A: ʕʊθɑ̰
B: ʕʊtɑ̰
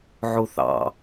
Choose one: A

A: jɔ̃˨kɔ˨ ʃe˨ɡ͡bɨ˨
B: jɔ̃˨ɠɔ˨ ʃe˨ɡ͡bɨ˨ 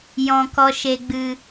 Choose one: A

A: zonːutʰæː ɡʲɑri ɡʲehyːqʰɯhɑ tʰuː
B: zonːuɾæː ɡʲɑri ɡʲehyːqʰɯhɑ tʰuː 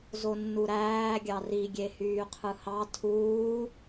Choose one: B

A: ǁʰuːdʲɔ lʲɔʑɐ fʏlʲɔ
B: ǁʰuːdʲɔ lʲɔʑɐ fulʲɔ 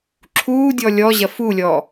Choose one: B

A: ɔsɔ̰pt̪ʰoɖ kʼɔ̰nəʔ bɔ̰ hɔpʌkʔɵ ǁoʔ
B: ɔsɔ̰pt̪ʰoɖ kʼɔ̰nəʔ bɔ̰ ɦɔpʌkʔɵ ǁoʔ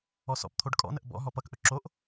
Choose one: B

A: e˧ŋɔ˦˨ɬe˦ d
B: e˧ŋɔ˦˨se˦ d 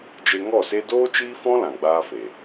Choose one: B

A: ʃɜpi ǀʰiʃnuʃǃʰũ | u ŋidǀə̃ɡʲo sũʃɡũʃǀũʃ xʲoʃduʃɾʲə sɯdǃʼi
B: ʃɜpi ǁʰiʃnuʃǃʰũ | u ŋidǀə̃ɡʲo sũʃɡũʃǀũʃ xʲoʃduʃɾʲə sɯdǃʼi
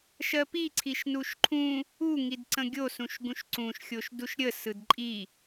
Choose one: A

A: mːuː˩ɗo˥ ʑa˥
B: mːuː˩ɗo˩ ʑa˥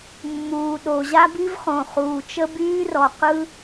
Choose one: B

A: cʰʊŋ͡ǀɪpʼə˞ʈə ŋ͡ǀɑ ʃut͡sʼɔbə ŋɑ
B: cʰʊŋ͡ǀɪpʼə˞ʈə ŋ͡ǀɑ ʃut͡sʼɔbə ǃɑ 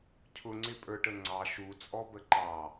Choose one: B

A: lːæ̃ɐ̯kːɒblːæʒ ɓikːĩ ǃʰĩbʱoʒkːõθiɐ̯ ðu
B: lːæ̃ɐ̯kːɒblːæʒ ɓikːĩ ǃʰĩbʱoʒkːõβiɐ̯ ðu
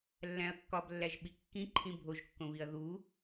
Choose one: B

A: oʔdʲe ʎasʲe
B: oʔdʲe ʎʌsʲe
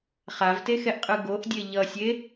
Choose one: B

